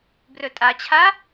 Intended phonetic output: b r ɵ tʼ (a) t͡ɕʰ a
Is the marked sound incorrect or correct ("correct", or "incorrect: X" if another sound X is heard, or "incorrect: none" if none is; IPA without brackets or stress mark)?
correct